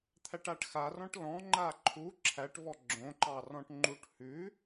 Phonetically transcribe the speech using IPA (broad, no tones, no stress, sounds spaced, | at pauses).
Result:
t̪ʰ æ ʈ a ʈ x a r ɔ̃ ʈ l ɔ̃ ŋ͡ǃ a ǃʰ u ǁʰ æ ʈ v ɔ ɡ͡ǁ õ ǃ ɑ r ɔ̃ ʈ ŋ͡ǃ u ʈ h ʉ